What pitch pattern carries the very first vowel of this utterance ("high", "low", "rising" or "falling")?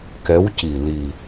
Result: rising